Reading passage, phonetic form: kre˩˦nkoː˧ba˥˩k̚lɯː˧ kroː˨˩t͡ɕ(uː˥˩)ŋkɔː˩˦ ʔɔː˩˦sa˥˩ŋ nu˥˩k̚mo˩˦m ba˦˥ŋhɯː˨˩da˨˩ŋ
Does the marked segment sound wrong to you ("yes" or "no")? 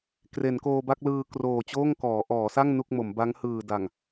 yes